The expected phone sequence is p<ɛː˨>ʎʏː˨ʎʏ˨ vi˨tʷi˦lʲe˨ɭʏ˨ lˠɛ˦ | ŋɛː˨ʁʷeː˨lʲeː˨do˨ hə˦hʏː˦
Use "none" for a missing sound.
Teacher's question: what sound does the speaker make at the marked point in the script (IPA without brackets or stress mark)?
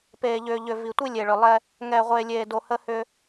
eː˨